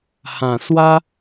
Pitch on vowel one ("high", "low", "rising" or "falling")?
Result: low